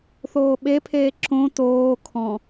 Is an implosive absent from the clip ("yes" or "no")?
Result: no